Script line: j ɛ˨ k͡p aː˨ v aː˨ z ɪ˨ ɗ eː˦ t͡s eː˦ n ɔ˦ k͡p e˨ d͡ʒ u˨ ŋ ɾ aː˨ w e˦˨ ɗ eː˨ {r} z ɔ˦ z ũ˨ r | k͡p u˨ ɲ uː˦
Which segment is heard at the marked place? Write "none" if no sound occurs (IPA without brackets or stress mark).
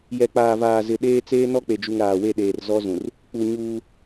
r